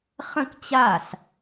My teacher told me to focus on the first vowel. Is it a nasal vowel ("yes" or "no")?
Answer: yes